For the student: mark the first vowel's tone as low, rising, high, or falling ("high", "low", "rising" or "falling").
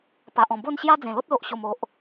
low